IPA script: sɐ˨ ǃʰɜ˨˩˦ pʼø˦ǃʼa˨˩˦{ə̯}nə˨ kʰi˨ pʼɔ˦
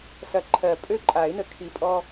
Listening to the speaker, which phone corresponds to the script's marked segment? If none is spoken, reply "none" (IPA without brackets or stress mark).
ɪ̯